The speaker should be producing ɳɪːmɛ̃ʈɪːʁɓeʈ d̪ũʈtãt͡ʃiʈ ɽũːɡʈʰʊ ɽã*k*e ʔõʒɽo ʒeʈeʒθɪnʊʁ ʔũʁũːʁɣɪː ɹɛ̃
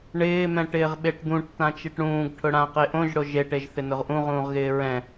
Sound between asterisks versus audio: incorrect: q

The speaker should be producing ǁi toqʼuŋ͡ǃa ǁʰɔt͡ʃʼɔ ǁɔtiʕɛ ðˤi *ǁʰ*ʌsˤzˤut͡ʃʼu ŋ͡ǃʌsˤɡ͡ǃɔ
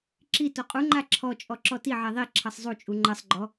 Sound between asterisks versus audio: correct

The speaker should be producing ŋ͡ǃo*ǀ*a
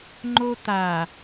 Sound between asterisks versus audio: incorrect: t̪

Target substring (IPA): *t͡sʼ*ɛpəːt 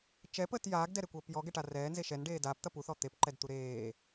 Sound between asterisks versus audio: incorrect: t͡ʃ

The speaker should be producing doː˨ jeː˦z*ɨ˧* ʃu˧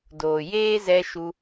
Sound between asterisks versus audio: incorrect: ɛ˧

